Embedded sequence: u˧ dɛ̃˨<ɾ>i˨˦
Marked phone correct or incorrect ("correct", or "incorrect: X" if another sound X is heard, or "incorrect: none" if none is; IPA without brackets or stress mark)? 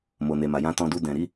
correct